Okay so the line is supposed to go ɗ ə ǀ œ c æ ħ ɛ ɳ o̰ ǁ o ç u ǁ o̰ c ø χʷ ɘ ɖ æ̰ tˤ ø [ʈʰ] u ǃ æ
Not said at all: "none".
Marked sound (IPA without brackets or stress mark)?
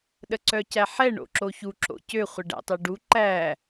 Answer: ɖ